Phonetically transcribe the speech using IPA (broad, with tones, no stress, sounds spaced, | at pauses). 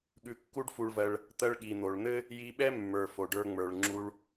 ɠ ʉ˧ kː u˥ ɖ f u˧ ɭ v ɜ˧ ɭ | t̪ ɜ˧ ɭ ɠ i˩ n̪ o˩ ɭ n̪ ɘ˥ | j i˧ ɓ ɛ˥ mː ə˞˩ f o˩ ɖ ə˞˧ ŋ͡m ə˞˩ ɭ ŋ͡ǁ u˧ ɭ